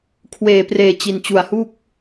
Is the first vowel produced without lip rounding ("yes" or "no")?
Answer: yes